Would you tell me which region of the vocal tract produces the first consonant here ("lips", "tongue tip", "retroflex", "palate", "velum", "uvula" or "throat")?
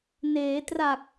tongue tip